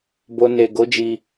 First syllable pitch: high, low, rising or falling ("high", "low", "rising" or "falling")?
low